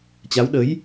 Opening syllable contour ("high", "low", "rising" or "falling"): rising